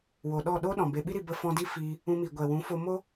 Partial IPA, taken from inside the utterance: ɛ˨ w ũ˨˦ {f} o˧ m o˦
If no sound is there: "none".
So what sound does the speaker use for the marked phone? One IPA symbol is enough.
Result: f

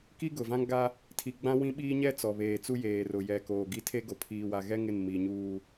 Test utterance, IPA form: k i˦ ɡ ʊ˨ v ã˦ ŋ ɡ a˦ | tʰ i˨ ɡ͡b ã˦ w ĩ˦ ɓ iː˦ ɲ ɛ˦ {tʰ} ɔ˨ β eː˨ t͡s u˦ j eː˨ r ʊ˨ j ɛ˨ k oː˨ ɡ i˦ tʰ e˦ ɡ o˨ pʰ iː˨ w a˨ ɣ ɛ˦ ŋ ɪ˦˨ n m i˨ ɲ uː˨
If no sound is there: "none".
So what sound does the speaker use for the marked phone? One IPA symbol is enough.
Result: t͡s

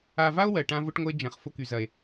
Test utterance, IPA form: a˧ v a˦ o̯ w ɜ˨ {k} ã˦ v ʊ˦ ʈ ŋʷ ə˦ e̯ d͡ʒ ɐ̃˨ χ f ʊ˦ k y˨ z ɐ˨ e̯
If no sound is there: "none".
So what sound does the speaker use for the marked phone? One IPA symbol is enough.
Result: ʈ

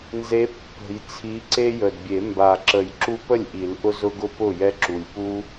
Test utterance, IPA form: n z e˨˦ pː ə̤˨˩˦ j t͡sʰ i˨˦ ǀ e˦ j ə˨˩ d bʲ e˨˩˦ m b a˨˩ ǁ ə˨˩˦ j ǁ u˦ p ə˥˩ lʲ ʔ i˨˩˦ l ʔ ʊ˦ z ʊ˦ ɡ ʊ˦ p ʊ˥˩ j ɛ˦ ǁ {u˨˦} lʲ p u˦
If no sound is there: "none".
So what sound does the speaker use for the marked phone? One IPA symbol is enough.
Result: u˨˩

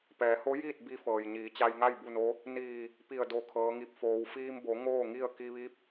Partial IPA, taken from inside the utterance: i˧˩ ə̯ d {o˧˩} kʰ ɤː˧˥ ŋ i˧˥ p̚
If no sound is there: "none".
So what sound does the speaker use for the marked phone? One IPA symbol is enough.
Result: o˧˩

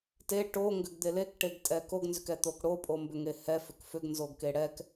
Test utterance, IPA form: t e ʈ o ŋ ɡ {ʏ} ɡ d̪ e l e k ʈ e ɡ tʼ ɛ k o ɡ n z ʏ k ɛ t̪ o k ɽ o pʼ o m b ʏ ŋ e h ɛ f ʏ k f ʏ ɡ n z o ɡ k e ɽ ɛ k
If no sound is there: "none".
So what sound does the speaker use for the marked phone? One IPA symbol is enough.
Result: ʏ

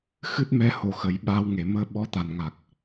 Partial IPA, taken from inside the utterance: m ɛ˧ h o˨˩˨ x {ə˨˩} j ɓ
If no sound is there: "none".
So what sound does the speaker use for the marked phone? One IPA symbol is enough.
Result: ə˨˩˦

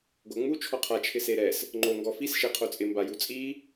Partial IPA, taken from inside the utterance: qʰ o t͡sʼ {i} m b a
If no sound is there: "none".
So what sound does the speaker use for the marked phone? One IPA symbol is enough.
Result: ɪ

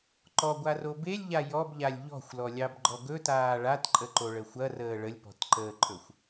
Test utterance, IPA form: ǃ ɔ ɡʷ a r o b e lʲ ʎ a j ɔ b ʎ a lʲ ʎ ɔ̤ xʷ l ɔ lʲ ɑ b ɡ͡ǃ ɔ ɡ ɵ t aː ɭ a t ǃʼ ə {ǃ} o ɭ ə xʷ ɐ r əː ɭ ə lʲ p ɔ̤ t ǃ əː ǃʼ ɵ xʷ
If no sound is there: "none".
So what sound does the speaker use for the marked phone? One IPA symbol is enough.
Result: ǃ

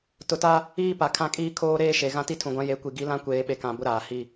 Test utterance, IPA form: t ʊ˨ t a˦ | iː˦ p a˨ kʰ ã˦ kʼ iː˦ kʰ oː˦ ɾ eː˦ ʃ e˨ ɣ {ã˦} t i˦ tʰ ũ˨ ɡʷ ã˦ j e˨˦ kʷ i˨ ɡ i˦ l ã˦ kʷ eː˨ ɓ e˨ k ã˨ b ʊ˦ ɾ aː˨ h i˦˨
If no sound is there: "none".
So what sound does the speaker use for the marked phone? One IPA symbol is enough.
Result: ã˦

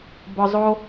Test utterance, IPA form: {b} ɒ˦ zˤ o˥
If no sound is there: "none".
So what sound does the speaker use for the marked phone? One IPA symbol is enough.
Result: b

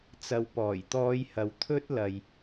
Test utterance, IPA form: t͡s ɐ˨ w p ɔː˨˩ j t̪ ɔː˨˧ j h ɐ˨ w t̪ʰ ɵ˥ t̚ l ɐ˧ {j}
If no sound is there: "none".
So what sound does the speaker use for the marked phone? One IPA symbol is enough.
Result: j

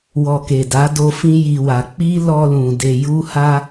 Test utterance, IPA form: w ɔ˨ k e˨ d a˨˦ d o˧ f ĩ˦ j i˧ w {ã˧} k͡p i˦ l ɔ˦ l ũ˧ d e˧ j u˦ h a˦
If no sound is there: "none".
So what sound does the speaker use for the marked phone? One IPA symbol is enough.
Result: a˧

